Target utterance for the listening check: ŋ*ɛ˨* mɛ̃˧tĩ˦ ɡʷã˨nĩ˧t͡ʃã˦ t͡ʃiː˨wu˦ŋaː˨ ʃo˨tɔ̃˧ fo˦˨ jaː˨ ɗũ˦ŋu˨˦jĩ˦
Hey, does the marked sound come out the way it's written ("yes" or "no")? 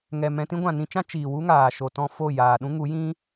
yes